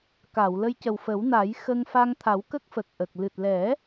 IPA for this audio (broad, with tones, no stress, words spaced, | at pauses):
ka˨˩˨w lə˧jcə˨˩wfə˨˩˦wna˨˩˦j xə˧ŋfa˧ŋ t̪ʰa˨˩˦wkə˦˥k̚ fə˨˩k̚ʔə˨˩k̚ lɨ˨˩t̚lɛ˨˩˦